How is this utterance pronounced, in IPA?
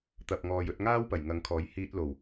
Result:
t̪ɐ˨p̚ŋɔː˨jɵ˧t̚ŋaː˥w pɐ˨˩jŋɐ˨˧ŋkʰɔː˨˥j hiː˧t̚lo˨˩w

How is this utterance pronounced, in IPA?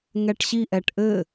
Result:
ŋɛʈɕi ʔɛʈʔɘ

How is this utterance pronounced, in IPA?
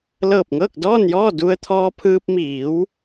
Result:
lɤː˧˩p̚ŋɤː˥˨k̚dɔː˥˨njɔː˥˨ du˧ə̯t̪ʰɔː˧pʰɯː˧p̚ miː˩˧w

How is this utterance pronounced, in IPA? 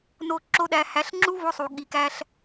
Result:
no˧ ǁo˦ɗæ˧ hæ˨˦ɬŋ͡ǁu˦vo˧sˤu˨ ɠi˨kæ˧ɬ

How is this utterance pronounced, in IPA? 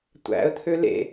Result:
tʷæ̰ə̯t̪ʰø lḛ

